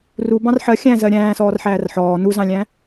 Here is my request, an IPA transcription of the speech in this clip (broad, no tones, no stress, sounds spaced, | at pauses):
r u b ɑ̃ r ħ ɜ xʲ æ̃ z ɜ ɾʲ æ̃ː s ɔː r ħ æː r ħ ɔː n u z ɑ̃ lʲ æ̃